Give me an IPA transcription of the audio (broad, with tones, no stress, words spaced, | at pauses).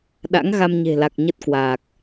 ɗa̰˧˥ŋɣa˧mɲe̤˨˩la˨˩k̚ ɲə˦˥t̚kwaː˨˩k̚